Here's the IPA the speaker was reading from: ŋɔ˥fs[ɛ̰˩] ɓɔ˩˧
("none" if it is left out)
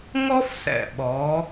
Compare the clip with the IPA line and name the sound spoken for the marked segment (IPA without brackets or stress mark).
ɛ̰˩